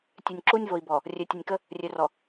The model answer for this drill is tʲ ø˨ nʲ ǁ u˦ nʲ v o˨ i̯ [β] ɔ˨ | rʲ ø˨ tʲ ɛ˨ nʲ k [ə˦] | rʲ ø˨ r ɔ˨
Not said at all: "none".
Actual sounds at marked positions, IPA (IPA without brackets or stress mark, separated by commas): b, ə˦